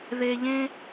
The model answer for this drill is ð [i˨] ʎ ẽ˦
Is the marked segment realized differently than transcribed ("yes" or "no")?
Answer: yes